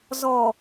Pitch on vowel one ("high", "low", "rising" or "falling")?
low